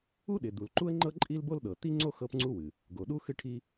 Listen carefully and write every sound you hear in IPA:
u˥ ɗ ɪ˩ d̪ u˩ l ǃ u˥ ə̯ ŋ͡ǃ ɤ˥ ǃʼ i˥ l b o˥ l ɗ ɤ˩ t̪ i˥ ŋ͡ǀ o˥ x ɤ˥ p ŋ͡ǀ u˥ w ɨ˩ | ɡ o˩ ɗ u˥ x ɨ˥ ʈʰ i˥

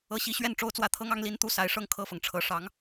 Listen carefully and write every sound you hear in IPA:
ɤ˧˥ ɕ i˧˥ ɕ ɥ ɛ˥˩ n ʈ͡ʂ o˥ ʊ̯ t͡s w ä˥˩ t̪ʰ ɤ˥ ŋ ɑ˥ ŋ l i˥ n t̪ u˥˩ s a˧˥ ɪ̯ ʂ ɤ˥˧ ŋ kʰ ɤ˥˩ f ɤ˩ ŋ ʈ͡ʂʰ ɤ˨˩ ʂ ɑ˧˥ ŋ

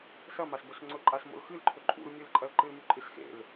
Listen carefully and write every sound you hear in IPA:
s ɐ m a s b ɵ s ŋ͡ǀ ɵ ǃʼ a s m o̰ l x ɨ l ǃʰ ɵ ǃʼ ṵ l mʲ ɨ l ǃʼ ɐ l ǃ ɨ l m ʉ ǃʼ ɨ s x ḛ l

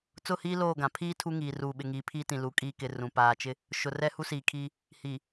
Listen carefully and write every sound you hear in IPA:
t͡s ʊ˦˨ h iː˦ l oː˦˨ ɡ ã˨ pʰ iː˦ tʰ u˦ ŋ iː˨ r uː˨ ɓ ɪ˨ ŋ iː˨˦ pʰ iː˦ t ĩ˨ l u˨˦ kʼ iː˨ k ɪ˨ r ũ˨ p aː˨ t͡ʃ ɪ˦ | ʃ ʊ˨ r ɛ˦ h u˦ s iː˨ kʰ iː˦ | h iː˨

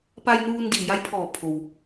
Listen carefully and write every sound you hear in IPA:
p a˧ j n uː˧ n d iː˧˩ j a˧˥ j pʰ ɔː˧˩ pʰ o˩ w

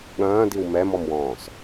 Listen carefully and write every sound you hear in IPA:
ɠ ɐ̃ː d i w m ɛ m ɔ m w ɔ̃ː s

